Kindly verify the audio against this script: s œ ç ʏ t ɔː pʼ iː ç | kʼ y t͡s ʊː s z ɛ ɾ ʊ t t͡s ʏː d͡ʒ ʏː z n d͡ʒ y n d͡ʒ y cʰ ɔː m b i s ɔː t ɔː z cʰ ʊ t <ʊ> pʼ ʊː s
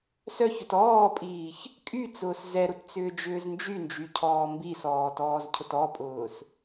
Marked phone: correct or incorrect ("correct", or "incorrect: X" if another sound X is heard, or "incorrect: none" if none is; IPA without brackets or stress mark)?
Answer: incorrect: ɔ